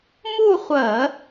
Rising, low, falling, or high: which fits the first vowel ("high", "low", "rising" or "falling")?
falling